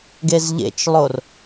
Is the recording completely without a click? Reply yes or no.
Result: yes